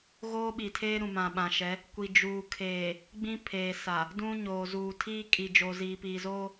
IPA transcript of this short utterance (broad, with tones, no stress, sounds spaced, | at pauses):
ɣ oː˦ ɓ i˨ tʰ eː˦ ɾ ũ˨ m ã˨ ɓ ã˨ ʃ ɛ˨˦ | kʷ i˨ d͡ʒ uː˨ kʰ eː˨ | ɡ͡b ĩ˦ pʰ eː˨ s a˨ | d ũ˦ ɲ oː˨ z uː˨ tʰ iː˦ kʼ i˨ d͡ʒ oː˨ z iː˨ p iː˨ z oː˦